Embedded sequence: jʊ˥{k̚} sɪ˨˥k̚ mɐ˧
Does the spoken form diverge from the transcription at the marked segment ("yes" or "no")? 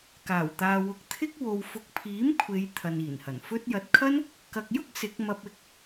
no